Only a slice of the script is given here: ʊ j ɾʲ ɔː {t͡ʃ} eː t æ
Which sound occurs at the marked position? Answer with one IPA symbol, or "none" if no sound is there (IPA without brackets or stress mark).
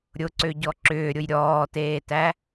t